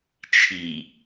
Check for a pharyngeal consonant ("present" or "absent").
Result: absent